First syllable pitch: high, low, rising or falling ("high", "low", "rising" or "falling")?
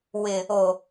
low